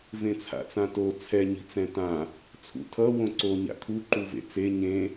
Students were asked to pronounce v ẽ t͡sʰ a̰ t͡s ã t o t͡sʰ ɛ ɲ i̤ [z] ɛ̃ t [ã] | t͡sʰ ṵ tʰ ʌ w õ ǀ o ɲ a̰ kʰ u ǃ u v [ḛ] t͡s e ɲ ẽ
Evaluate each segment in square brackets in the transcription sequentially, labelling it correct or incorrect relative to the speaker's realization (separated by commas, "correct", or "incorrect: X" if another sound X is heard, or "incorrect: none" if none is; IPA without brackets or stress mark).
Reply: incorrect: t͡s, correct, correct